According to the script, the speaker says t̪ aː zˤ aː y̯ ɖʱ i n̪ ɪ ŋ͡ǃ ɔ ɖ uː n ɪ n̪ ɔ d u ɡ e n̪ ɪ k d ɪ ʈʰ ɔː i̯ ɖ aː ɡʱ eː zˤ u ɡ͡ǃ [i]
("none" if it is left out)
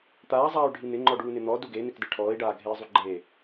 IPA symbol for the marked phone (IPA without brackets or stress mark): e